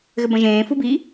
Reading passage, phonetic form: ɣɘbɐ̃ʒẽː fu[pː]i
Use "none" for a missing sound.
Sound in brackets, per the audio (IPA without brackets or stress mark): b